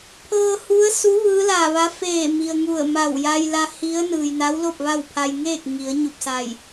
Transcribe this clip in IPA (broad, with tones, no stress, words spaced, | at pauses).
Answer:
pʰɤː˧hu˧˥ə̯su˧˥ ʋɯː˧˥la˧˩ʋa˧˥ feː˧˩mi˩ə̯ ŋu˧˩ə̯ma˧˩wja˧j la˧hi˧˥ə̯ nɯː˩jna˧˥wlo˥˨p̚ ʋa˥˨wpʰa˧j ŋeː˥˨k̚ŋi˩˧ə̯ɲu˧˩p̚sa˧˩j